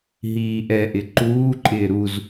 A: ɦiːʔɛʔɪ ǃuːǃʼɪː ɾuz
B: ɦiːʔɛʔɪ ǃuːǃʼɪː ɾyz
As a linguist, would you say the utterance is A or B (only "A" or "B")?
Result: A